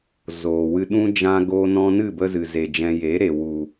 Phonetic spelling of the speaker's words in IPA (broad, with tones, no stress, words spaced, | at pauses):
zoː˨wɨ˧ɗũ˦ d͡ʒã˦ɡoː˦nɔ̃˦ nɨ˦˨bə˧zɨ˨ze˨ d͡ʒɛ̃˧ je˨˦ ɾe˨wu˨